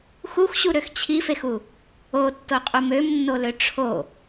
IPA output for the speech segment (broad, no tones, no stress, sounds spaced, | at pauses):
x u x ɕ u ɾ ø x t͡ɕʰ i f e x u | o tː o qʼ u m ø m nː o l ø ʈ͡ʂʰ o